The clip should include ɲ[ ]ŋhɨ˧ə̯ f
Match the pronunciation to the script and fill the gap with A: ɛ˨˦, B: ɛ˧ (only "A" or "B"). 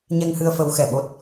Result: B